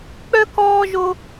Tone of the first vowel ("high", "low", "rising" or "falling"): high